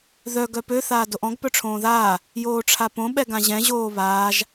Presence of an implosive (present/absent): present